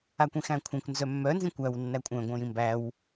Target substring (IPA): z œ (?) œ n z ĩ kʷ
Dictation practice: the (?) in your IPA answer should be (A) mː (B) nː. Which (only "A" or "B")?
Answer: A